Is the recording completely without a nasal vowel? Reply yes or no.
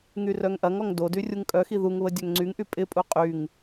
yes